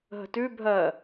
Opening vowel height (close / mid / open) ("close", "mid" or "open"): mid